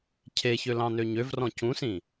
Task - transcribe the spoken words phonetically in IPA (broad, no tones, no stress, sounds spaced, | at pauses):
cʰ e ç ø l ɑ̃ n ø ɲ ø v r ɔ̃ c ũ s ĩ